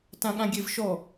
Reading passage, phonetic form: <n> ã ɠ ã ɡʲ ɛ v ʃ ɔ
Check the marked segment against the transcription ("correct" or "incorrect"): incorrect